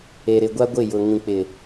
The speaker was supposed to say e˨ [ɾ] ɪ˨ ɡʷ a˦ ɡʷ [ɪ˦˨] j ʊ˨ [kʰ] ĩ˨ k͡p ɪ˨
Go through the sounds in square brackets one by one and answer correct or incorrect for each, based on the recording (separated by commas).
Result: correct, correct, incorrect